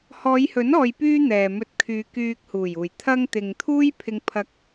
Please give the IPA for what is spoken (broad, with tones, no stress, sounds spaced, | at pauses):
h ɔː˨˧ j h ɵ˨˥ n ɔː˨ j p yː˧ n̪ ɛː˨ m ɵ˧ t̚ kʰ yː˨˧ k yː˧ k̚ h uː˨˩ j uː˨˩ j t̪ʰ ɐ˧ ŋ t̪ ɪ˨ ŋ t̪ʰ uː˥ j pʰ ɪ˧ ŋ pʰ ɐ˧ k̚